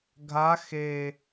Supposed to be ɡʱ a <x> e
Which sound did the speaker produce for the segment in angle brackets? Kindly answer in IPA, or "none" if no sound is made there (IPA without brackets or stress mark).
x